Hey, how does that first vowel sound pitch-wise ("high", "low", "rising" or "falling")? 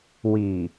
low